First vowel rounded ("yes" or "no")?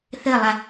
no